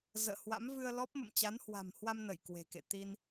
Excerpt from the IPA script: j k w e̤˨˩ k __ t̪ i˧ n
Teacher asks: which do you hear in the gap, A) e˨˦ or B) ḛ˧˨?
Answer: B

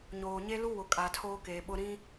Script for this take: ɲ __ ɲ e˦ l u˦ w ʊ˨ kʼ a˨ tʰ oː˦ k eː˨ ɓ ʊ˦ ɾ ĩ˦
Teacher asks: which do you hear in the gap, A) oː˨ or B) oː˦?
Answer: A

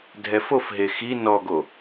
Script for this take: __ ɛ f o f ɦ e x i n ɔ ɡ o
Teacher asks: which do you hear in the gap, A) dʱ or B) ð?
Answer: A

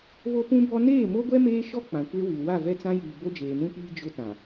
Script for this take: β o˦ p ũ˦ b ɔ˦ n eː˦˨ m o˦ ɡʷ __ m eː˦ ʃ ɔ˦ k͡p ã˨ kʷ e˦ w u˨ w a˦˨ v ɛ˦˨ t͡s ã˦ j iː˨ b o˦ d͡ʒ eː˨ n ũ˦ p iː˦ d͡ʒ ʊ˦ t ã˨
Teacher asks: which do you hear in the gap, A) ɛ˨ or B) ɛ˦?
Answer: B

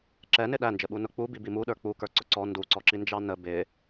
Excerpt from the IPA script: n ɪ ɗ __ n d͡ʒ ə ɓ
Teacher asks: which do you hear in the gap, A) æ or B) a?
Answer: A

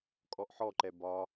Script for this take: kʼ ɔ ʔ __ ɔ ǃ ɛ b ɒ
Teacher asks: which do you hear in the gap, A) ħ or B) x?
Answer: A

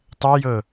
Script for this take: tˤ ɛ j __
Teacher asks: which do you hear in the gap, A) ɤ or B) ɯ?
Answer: A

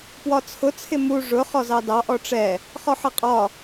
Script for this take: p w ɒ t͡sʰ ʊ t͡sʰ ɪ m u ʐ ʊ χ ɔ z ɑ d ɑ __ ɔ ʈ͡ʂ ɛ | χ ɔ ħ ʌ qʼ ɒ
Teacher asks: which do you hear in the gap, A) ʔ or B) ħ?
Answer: A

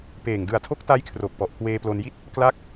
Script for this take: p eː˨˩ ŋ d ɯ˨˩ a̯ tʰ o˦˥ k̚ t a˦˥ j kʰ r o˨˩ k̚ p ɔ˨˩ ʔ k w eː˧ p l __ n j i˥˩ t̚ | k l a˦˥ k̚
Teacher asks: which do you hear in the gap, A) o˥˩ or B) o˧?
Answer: B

